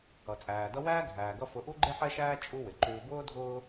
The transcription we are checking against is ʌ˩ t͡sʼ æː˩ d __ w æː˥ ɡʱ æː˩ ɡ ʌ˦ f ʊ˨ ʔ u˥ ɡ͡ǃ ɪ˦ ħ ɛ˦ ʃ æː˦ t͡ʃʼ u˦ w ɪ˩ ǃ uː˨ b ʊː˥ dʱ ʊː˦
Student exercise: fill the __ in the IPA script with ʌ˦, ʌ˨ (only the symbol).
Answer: ʌ˦